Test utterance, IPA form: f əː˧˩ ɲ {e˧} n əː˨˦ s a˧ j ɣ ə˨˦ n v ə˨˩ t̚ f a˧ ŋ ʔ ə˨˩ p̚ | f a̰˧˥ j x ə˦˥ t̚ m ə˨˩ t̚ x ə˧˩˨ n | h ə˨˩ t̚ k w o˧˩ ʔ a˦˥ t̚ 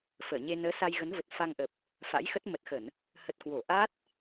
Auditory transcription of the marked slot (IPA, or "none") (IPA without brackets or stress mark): e˧